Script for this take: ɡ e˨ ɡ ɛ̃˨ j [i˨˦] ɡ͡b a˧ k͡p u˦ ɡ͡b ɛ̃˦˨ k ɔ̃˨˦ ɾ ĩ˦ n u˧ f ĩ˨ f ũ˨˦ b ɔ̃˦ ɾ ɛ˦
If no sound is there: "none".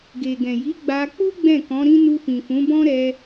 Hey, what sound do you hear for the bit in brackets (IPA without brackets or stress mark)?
i˨˦